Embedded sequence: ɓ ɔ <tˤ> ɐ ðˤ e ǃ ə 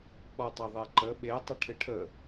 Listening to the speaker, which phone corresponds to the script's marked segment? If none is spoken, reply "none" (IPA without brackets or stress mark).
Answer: tˤ